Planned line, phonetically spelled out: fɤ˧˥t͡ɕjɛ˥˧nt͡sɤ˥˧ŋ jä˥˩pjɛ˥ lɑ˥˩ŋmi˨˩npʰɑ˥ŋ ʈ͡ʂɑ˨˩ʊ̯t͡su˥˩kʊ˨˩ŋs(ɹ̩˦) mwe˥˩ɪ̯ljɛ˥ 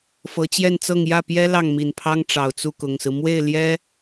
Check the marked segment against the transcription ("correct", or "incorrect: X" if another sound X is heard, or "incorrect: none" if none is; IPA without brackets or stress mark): correct